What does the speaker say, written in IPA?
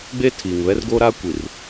ɡ͡b eː˦ tʰ iː˨ ŋ β ɛ˦ r ɡ oː˦ ɾ aː˦ kʷ i˨ r

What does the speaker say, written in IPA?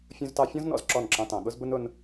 fʲ ũ˦ z t ɑ˦ fʲ ɔ̃˦ z n ɔ̰˨ z ǁ ɔ˦˨ n ǁ ɑ̃˧ t ɑ̃˨ ɠ ʊ˦ z b ʊ˦ n ʊ˧ n

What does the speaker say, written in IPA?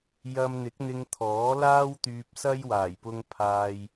j ɐ˧ m n̪ ɪ˨˥ k̚ n̪ ɪ˧ ŋ t̪ʰ ɔː˨˥ l aː˥ w t̪ yː˧ p̚ s ɐ˥ j w aː˨˩ j p ʊ˧ ŋ pʰ aː˧ j

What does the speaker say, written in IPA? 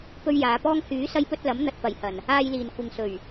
p ɵ˧ ɥ j aː˨˧ p ɔː˥ ŋ h yː˨˥ s ɐ˧ j p ɵ˧ t̚ l ɐ˨˥ m n̪ ɐ˨ t̚ p ɐ˨˩ j h ɐ˨˩ n | aː˧ j l iː˨˩ n kʷ ɪ˨ ŋ s ɵ˨˩ ɥ

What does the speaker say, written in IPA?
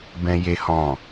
b ɛ̃˦ j e˦ h ɔ̃˦˨

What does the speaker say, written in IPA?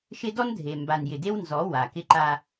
ʃ ɪ˦ d ɔ˦ n dʱ e˨ m b a˨ n j ɪ˨ d e˦ w n z ɔ˨˦ w a˨ k ɪ˦ ǃ a˦

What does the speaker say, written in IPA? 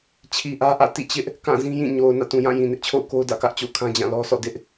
t͡ɕʰ i˨ ʔ ä˦ ʔ ä̰˦˨ t ḭ˦˨ t͡ɕ ɪ˦ ʔ | k ã˦˨ z ĩ˦ j ĩ˦˨ ɲ o˨ ʊ̯ n ä̰˦˨ t ũ˨ j ã˦˨ j ĩ˨ n ɪ˦ ʔ t͡ɕʰ o̰˦˨ ʊ̯ k o˦ ʊ̯ d ä̰˦˨ k ä˦ ʔ t͡ɕ o̰˦˨ ʊ̯ kʰ ã˦ d͡ʑ ã˦˨ l ɔ˦ sʰ ɔ̰˦˨ d ɪ˦ ʔ

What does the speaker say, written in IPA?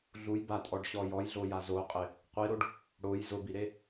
ɮ u j b a tʼ ɔ ɖ ɕ ɔ j ɔ j ɮ o j a z o qʼ ɪ | qʷ i ɾ o ɖ | ɽ o j z ʊ b i ɾ e

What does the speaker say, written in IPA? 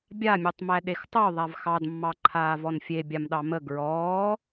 bʲ a mʲ o tˤ m æ ɗ e x tˤ o ðˤ a v x ɑ d mː ɑ ǃʰ aː v ɔ n fʲ e bʲ a m ɗ ɑ m ə ɡ ɹ ɔː

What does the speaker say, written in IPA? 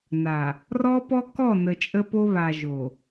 n a˨ | r ɔ˦ p ɔ˦ k ɔ˦˨ n ə˨ t͡ʃʼ ə˦ p o˦ β a˨ ʒ o˨

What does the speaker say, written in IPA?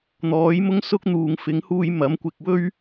n̪ ɔː˨˥ j m ʊ˥ ŋ s ʊ˥ k̚ n̪ uː˨ ŋ f ɪ˨˥ ŋ h uː˧ j m ɐ˨˥ m kʷ ɪ˧ k̚ w ɵ˥ ɥ

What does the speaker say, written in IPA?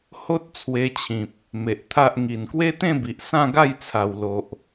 h o˦ t̚ t͡sʰ w e˧ t͡ɕʰ ĩ˨ p̚ | m e˨ ʔ t̪ʰ a˦ ʔ ŋ i˨˩ n k w e˦ t̪ ẽ˥˧ b i˨ ʔ s ã˥˧ ɡ a˥˧ j t͡sʰ a˨˩ w l o˨ ʔ

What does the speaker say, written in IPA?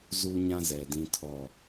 z uː˦ ɲ ã˦ z ɛ˨ d ĩ˦ tʰ ɔ˦˨

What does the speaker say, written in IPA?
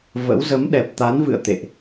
v ə̰˧˥ w z ə˨˦ m ɗ ɛ˨˩ p̚ t̪ a˨˦ n v ɨ̰˧˨ ə̯ t̪ ḛ˧˨ ʔ

